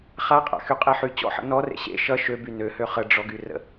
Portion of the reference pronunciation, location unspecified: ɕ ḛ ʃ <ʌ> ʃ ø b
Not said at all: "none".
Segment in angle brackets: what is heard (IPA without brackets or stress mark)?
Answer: ʌ